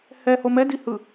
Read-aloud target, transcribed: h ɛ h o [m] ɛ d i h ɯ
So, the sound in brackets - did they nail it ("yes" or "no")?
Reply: yes